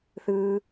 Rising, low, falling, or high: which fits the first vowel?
high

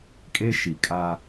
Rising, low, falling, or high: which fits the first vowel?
high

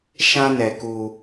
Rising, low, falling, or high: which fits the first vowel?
high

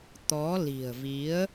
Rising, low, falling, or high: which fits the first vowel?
rising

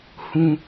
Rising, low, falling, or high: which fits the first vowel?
high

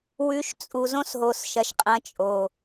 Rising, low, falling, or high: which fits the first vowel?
rising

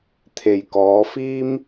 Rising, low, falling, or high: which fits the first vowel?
low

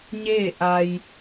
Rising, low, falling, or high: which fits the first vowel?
falling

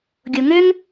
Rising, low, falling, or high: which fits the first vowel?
low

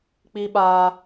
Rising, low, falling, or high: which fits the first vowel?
high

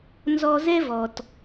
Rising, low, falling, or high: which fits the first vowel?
high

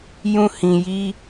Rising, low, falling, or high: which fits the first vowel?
high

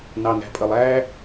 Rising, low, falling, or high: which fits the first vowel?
low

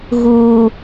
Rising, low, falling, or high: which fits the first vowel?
high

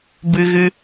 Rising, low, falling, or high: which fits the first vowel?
high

